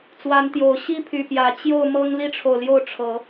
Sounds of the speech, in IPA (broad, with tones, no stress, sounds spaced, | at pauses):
t͡s w a˨˦ n t̪ j o˨˩ ʊ̯ ɕ i˦ pʰ y˨˩ p j ä˨˦ t͡ɕ j o˥˨ ʊ̯ m ɤ˦ ŋ l i˦ ʈ͡ʂʰ o˨ ʊ̯ l j o˥˨ ʊ̯ ʈ͡ʂʰ ɤ˨˦